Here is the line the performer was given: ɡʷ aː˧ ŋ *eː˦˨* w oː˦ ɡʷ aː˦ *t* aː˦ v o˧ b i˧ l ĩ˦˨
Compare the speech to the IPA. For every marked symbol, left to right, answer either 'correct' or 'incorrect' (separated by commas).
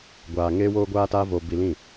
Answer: incorrect, correct